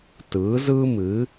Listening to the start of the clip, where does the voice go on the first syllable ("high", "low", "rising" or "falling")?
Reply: rising